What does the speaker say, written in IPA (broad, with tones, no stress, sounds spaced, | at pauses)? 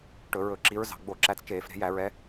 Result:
ʈ ɵ˧˩˧ ɹ ɵ˧˩˧ ǁ i˨˦ ɹ z ɑ̤˩˧˩ ɡ͡b o˧˩˧ ǁ æ˨˦ t͡s t͡ʃ eː˧˩˧ f ɾ e̤˧˩˧ j æ˧˩˧ ɹ ɛ˨˦